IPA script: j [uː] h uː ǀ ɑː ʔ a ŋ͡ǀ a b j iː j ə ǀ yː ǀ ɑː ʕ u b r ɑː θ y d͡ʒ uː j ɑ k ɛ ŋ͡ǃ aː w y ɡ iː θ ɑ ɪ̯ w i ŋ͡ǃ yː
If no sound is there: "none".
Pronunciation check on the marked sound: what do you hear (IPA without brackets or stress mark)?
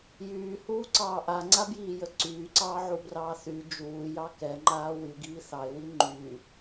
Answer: yː